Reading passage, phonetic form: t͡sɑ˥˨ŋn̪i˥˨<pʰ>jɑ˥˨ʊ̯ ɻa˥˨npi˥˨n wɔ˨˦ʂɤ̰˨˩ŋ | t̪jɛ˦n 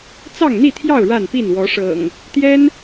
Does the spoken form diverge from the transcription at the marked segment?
yes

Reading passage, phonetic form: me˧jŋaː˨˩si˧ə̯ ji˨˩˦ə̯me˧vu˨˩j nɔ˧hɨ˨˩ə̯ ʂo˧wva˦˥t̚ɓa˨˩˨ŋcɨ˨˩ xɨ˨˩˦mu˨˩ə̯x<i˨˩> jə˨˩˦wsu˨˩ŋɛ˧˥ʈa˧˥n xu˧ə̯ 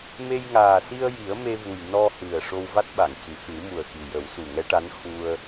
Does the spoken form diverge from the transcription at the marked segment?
no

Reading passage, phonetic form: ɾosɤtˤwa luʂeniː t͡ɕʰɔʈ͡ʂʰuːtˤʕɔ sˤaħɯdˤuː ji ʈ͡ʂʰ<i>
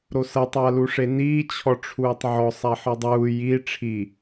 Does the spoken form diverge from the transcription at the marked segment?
no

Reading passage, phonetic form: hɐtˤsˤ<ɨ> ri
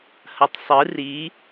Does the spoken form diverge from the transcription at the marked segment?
no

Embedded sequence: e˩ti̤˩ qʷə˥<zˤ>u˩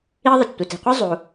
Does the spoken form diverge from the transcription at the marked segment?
no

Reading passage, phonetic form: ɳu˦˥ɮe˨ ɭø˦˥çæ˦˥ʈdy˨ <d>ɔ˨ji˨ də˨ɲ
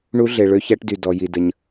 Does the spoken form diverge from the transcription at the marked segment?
no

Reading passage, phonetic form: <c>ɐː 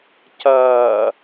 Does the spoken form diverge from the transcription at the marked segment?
no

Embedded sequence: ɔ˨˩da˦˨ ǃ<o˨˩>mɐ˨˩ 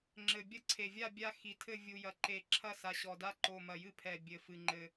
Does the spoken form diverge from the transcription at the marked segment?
no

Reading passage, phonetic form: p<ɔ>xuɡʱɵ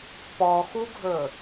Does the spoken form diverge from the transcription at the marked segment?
no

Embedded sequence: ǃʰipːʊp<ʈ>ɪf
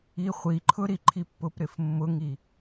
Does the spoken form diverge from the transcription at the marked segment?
yes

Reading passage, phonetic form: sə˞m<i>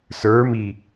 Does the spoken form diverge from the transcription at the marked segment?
no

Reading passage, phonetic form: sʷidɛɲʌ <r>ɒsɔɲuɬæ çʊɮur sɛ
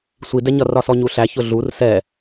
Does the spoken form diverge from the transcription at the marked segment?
no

